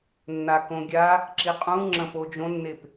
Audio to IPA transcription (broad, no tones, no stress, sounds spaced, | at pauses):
nː a k õ ɡʲ a | ǁ i qʼ ũ ŋ͡ǁ ɐ̃ p o d͡ʒ õ nː e p